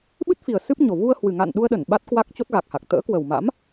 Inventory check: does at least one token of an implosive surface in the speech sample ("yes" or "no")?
yes